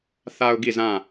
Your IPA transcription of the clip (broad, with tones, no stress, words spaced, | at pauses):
θa˨ʊ̯ ɡi˦˨zã˦˨